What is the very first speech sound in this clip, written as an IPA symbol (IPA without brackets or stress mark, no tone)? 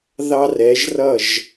ð